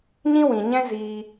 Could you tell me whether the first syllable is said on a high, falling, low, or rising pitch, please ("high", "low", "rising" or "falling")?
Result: high